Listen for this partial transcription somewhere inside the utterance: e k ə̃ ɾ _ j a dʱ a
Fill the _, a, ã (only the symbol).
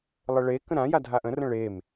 ã